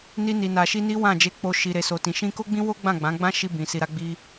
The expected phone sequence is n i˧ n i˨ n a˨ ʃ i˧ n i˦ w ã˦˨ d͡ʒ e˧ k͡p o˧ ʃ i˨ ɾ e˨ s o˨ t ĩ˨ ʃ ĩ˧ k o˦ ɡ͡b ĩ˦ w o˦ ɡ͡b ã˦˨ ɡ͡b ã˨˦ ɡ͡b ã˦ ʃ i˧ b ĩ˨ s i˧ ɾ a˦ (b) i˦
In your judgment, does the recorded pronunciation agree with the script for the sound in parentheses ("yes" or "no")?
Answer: no